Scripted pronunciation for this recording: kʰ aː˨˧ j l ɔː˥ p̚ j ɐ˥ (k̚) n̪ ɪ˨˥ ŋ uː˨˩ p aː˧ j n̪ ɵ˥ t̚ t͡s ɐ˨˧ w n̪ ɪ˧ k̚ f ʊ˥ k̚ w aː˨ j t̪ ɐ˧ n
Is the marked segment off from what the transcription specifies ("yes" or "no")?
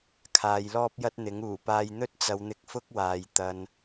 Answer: yes